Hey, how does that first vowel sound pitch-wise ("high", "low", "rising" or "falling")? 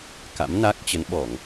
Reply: rising